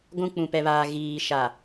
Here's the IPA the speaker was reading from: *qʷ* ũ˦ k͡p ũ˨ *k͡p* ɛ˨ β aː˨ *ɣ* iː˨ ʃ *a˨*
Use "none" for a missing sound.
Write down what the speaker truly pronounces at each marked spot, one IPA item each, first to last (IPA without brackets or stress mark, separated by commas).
ɡʷ, p, ɣ, a˨